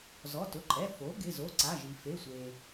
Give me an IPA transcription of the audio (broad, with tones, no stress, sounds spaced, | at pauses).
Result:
z ɔ˩˧˩ t ʊ˩˧˩ ǃʼ ɛ˩˧˩ f o˩˥ ɡ ɪ˩˧˩ z o˩˧˩ ǀ a˩˧˩ ʒ i˩ f e˩˧˩ sʷ e˩